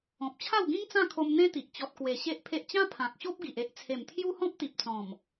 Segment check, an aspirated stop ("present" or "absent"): present